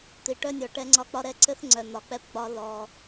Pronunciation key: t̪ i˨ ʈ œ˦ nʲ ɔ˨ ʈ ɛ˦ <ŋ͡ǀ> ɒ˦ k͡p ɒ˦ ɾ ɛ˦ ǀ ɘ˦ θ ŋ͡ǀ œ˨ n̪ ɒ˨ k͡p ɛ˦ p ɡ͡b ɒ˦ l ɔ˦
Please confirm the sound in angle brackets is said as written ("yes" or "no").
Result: yes